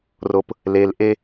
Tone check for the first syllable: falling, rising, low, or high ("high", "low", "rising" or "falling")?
low